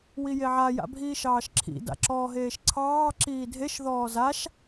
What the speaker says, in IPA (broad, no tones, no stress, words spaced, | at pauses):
wijeʕa ja̰bʱiːʃɑːʃǁʰḭ da̰ǁɔːɦeːʃǀʰɑː ǁiːdʱeʃ ðɔːzaʃ